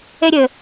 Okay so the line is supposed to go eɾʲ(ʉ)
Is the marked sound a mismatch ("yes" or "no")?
yes